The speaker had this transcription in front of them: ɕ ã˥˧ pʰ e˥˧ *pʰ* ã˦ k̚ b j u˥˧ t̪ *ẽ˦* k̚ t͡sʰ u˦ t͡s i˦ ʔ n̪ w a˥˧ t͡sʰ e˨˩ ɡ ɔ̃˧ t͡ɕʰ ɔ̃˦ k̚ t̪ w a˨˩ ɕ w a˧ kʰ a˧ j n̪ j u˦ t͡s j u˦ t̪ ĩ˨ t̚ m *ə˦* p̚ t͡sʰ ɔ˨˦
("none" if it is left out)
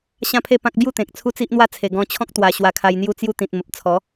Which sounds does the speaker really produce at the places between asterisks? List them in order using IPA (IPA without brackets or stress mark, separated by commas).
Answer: p, ẽ˨, ə˨